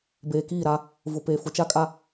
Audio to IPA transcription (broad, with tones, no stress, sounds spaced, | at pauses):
b eː˨ k iː˦˨ ɾ a˦ | v ʊ˨ p e˨ f ʊ˨ t͡ʃ a˦ kʼ a˦